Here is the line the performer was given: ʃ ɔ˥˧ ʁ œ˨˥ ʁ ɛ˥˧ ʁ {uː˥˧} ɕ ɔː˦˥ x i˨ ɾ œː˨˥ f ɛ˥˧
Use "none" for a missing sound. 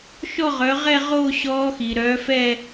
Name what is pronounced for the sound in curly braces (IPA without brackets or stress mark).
oː˥˧